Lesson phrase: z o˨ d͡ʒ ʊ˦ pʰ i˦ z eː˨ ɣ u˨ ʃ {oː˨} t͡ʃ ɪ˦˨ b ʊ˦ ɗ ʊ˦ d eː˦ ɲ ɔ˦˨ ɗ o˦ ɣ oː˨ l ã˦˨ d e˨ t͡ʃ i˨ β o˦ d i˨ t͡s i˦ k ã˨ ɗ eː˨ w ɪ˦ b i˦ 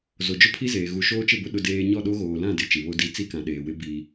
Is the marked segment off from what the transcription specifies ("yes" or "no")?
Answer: yes